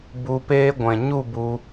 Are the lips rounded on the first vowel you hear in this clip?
yes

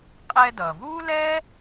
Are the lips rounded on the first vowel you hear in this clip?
no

